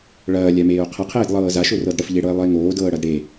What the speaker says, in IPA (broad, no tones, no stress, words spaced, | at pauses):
ɭɐːlʲameːo̯ qʰɐqʰeːdlˠɤː zaʃorɤd ɽəfʎeɽɤe̯lˠəe̯ ŋoːdɤːɽɐd ɽe